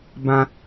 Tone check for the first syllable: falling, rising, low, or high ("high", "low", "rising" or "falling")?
high